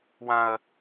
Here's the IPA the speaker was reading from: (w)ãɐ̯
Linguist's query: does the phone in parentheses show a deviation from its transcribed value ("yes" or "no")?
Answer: no